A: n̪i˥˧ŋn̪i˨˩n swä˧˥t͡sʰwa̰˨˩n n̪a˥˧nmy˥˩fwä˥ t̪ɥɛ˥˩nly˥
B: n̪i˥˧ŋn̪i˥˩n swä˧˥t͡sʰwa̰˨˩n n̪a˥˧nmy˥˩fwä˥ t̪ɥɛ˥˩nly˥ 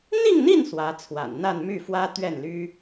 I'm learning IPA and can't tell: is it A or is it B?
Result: B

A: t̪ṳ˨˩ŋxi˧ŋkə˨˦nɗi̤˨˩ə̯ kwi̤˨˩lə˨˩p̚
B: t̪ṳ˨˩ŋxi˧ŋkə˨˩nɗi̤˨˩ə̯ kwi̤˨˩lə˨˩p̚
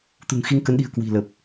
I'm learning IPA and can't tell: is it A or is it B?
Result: A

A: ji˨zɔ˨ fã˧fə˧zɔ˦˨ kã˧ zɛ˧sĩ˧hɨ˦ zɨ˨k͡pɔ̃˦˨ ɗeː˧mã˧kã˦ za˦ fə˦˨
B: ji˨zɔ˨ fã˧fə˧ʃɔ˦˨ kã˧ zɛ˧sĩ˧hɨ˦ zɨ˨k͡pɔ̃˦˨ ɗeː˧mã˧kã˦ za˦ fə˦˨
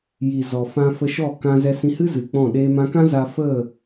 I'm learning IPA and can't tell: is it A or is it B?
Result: B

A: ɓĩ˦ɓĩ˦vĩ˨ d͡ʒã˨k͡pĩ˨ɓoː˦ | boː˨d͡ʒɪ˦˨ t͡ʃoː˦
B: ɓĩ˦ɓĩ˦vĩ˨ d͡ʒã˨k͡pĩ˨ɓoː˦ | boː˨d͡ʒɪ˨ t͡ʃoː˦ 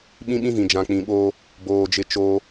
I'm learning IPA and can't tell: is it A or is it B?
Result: A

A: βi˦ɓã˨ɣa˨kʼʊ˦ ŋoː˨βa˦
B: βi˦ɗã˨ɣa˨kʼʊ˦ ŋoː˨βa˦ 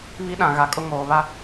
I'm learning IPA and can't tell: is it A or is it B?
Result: B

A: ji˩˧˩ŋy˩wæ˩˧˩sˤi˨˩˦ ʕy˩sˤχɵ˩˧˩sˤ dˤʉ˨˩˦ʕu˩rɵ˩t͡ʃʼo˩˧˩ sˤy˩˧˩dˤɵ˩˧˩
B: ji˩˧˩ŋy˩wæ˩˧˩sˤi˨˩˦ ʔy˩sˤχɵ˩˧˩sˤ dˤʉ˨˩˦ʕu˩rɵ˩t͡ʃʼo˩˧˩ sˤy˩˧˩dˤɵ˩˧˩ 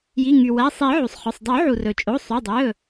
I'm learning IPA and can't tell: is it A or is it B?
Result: A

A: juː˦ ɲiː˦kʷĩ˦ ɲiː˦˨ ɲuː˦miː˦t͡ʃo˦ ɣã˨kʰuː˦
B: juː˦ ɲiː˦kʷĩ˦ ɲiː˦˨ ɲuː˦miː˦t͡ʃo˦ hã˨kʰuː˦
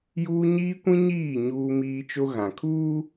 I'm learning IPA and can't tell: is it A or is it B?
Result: A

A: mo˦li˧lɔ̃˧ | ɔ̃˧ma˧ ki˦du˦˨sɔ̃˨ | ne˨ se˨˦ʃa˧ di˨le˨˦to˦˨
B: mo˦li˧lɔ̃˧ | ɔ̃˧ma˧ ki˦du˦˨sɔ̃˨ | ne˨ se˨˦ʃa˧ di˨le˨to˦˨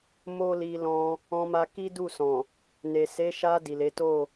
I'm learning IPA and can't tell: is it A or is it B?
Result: A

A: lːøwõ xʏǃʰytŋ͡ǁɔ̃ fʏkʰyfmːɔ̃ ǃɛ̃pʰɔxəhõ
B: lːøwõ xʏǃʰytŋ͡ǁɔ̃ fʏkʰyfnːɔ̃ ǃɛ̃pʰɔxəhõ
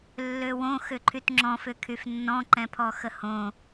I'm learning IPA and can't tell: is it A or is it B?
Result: B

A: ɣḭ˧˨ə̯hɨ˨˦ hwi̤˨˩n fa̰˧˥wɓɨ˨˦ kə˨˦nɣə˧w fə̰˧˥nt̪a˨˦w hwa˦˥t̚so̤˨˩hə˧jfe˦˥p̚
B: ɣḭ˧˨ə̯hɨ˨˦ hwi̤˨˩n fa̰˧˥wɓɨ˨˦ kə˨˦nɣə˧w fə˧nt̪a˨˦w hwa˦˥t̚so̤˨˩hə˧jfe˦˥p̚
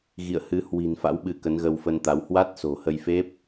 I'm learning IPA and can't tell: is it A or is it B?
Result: B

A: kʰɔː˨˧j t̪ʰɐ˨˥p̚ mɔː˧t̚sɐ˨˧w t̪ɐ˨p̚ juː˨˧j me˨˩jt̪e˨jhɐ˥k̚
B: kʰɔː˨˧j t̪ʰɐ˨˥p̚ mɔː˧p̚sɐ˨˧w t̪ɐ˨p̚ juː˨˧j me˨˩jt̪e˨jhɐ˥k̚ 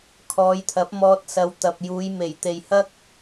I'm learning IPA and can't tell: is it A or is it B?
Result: A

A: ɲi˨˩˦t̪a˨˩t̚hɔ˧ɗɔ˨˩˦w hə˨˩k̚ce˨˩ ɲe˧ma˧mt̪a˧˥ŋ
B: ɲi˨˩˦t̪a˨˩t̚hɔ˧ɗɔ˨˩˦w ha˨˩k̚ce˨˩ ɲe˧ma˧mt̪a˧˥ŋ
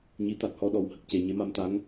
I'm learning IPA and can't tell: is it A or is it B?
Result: A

